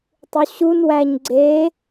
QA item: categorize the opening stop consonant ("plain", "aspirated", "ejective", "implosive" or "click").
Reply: plain